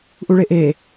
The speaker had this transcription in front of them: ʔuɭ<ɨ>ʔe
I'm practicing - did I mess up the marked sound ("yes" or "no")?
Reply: yes